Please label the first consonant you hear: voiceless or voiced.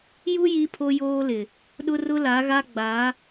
voiced